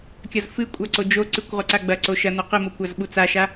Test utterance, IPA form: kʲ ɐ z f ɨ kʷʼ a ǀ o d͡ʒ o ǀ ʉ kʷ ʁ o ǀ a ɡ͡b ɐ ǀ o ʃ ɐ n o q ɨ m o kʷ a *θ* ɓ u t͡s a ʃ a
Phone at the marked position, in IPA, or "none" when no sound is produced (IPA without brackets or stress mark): z